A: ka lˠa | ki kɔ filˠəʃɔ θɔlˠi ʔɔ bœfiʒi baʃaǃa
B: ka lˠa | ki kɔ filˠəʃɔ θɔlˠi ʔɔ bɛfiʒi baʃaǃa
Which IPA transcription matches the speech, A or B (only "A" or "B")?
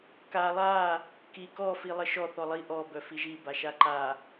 A